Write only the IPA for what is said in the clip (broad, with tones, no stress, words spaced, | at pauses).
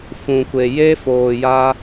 fũ˨kʷe˨je˦foː˨ ja˦